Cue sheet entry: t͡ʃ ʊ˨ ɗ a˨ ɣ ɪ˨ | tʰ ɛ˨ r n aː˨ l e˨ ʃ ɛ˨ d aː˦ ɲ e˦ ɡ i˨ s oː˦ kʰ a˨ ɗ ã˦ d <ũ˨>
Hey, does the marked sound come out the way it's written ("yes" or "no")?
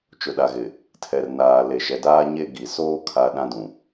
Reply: yes